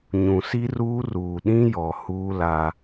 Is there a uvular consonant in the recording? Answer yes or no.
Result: no